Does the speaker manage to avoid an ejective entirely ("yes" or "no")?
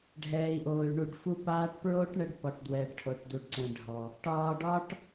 yes